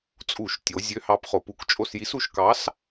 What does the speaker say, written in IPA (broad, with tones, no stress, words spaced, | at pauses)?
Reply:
t͡sʼu˧˩˧ʃtʲo˩˧ zʲø˨˥hɑ˨˥p χo˩pu˧˩˧kt͡ʃʼo˦˨sji˨˥s u˩˧ʃkɑ˨˥s